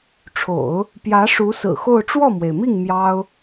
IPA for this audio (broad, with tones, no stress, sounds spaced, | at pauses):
ʈ͡ʂʰ o̰˨˩˦ ʊ̯ | p j ä˧˥ ʂ u˧˥ s ɹ̩˨˩ x o˥˧ ʊ̯ ʈ͡ʂ w ɔ˥˩ m w e˩ ɪ̯ m i˥˩ ŋ m j ɑ˥ ʊ̯